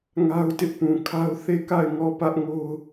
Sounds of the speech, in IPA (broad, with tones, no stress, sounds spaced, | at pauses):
ŋ a˦ ʊ̯ t ɪ˦ ʔ p ũ˨ kʰ a˦ ʊ̯ θ e˦˨ k a˦˨ ɪ̯ ŋ ɔ˦˨ p ä˦ ʔ ŋ o˦ ʊ̯